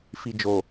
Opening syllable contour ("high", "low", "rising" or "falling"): low